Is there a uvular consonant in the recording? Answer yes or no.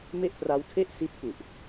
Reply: no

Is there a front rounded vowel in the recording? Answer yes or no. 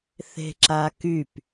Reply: yes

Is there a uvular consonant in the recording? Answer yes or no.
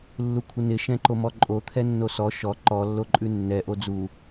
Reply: no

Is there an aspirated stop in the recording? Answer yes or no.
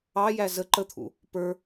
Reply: yes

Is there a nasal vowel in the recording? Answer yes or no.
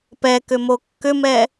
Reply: no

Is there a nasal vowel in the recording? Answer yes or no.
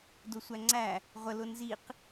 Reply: no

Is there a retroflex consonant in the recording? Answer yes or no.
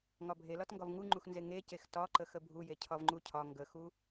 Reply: no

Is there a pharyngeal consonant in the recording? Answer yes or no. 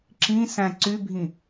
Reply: no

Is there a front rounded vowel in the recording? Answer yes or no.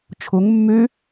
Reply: yes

